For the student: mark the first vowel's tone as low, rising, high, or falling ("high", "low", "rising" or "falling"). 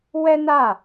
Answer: high